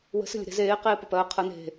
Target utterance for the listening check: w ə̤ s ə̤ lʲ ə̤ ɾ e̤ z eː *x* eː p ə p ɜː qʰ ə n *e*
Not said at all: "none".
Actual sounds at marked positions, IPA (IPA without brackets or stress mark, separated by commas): q, e̤